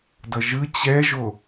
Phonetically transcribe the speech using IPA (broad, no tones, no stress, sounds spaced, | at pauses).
d ʌ ʒ ɯ t͡ɕ ɛ ʒ o